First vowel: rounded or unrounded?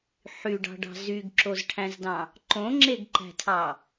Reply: rounded